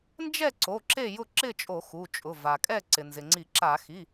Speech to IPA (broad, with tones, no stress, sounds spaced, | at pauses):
n d͡ʒ ɛ˥˨ ǀ o˩˧˩ ǁ e˥˨ j ʊ˥˨ ǁ ɪ˥˨ t͡ʃʼ o˧˩˧ x u˩˧˩ t͡ʃʼ ʊ˩˧˩ v a˩ kʼ ɛ˥˨ ǀ ɪ˩ n z ɪ˩ ŋ͡ǀ i˧˩˧ ǁ a˧˩˧ x i˩˧˩